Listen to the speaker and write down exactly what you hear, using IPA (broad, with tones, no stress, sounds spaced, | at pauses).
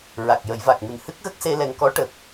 ɹ a˨˩ k̚ j ə˨˩˦ j v a˨˩ k̚ m ɨ˨˩ n h ɨ˦˥ k̚ ɣ ə˦˥ k̚ s e˧ l ɛ˨˩ ŋ k ɔ˧˥ ʈ ə˨˩ k̚